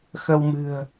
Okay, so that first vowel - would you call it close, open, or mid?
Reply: mid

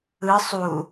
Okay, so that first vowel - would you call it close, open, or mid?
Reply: close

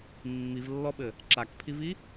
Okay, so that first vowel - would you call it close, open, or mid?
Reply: close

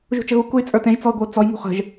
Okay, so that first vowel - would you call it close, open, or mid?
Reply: close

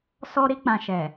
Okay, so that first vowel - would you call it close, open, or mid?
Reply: mid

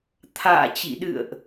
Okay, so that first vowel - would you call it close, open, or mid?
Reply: open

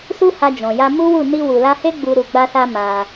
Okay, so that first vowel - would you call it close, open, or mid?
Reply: close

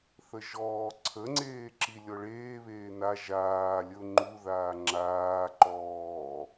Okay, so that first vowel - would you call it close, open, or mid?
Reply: mid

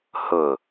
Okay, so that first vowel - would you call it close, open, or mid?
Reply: close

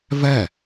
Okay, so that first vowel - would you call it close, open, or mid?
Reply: mid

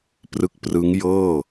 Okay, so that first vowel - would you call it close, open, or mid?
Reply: close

